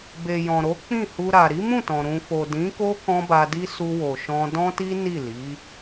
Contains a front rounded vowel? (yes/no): no